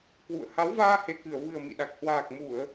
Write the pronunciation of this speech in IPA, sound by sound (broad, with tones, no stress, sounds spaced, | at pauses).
k w ṵ˧˨ ə̯ h a˨˦ w v aː˧ h e˨˩ k ɨ˧˩ ə̯ v ɨ˨˩ ə̯ m ḭ˧˨ ɗ a˨˩ k̚ h w aː˨˩ k̚ m u˧˩˨ ə̯